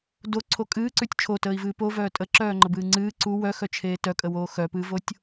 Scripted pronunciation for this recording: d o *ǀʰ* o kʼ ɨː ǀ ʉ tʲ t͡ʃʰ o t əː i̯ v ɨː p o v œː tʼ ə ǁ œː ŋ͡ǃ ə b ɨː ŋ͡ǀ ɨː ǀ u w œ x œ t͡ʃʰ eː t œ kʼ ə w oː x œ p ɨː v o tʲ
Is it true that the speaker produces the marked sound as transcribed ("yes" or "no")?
yes